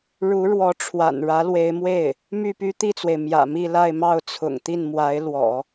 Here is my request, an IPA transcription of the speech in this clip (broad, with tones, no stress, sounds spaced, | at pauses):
ɻ u˧˥ ɻ w ɔ˧˥ ʈ͡ʂʰ w a̰˨˩ n ɻ ä˧˥ l w e˧˥ ɪ̯ m w e˥˩ ɪ̯ | m y˥˩ p y˥ t̪ i˥˩ t͡s w e˩ ɪ̯ m j ä̰˨˩ m i˥˧ l a˥˧ ɪ̯ m ɑ˥˩ ʊ̯ t͡sʰ ʊ̰˨˩ ŋ t̪ i˥˩ n m w a˧˥ ɪ̯ l w ɔ̰˨˩˦